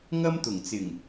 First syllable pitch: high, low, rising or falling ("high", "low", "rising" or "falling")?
high